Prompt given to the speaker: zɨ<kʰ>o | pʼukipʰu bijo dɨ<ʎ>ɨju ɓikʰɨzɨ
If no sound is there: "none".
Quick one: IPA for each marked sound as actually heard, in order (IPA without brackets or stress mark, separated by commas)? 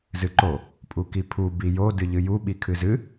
ǃ, ʎ